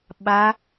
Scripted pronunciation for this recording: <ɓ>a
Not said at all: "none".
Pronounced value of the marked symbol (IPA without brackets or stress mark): ɓ